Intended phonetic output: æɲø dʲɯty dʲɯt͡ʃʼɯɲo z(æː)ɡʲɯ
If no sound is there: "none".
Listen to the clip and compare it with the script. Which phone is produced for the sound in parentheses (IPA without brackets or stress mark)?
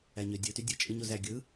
æ